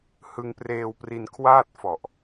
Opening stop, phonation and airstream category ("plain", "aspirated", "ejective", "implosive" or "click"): plain